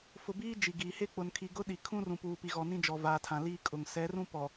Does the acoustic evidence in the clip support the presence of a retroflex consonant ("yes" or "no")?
no